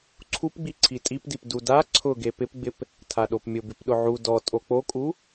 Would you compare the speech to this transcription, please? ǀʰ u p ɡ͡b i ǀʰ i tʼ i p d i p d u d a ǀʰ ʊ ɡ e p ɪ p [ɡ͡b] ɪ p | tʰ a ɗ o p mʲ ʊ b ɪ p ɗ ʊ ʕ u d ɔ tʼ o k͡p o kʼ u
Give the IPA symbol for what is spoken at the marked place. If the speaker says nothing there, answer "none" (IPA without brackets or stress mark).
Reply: ɡ͡b